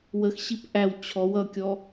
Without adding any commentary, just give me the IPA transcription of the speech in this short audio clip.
w ə x ɕ i p ʔ æ w t͡ɕʰ ɔ w ʌ kʲ ɔ

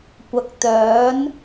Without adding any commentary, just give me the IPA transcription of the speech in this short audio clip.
kʷ ɐ˨ k̚ t̪ œː˨˧ n

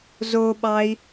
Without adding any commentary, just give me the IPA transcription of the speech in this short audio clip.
z o ɓ ɑ i̯

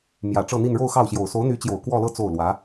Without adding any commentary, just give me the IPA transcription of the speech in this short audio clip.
m j ä˨˩ ʈ͡ʂ ɤ˥˧ n̪ i˥˧ n ɻ o˥˧ ʊ̯ x ɑ˥˩ ʊ̯ ɕ j o˨˩ ʊ̯ s o˧˥ ʊ̯ n̪ y˧˥ t͡ɕ j o˨˩ ʊ̯ k w ɔ˥˧ l ɤ˥˧ t͡s o˥˩ ʊ̯ l w ä˧˥

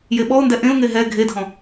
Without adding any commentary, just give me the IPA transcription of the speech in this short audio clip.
j e ɓ ɔ ʊ̯ n d ɛ ʔ ẽ ʊ̯ ŋ e ɦ ɛ ɡʱ e dʱ ɔ̃

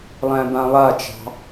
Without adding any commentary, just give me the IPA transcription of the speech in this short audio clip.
lˠ æ̃ b ã lˠ a t͡ʃ ɑ̤

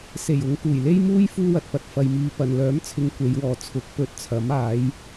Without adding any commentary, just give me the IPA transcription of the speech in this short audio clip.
s e˨˩ j ʊ˨˧ ŋ k uː˨˩ j l e˥ j m uː˥ j f uː˥ w ɐ˨ t̚ p ɐ˨ t̚ f ɐ˨ j m iː˧ p ɐ˨ n l œː˨˥ m t͡sʰ ɪ˨ ŋ kʷ e˨˧ j w ɔː˨ t͡sʰ ʊ˨˥ k̚ p ɵ˨˥ t̚ t͡sʰ ɐ˨˥ m aː˨˥ j

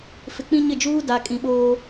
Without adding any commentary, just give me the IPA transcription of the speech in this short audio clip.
f ɪ˨ k͡p ĩ˦ ɲ ɪ˦˨ d͡ʒ uː˦ d a˨ kʼ ĩ˨ ɓ oː˦

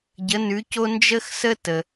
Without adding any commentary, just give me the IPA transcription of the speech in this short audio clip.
ɟ ə˩˥ n ʉ˩˥ c o˥ n d͡ʒ ə˥ x s ə˥ t ə˩

